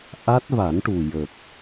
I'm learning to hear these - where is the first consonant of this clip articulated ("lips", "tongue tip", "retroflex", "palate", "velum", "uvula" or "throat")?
throat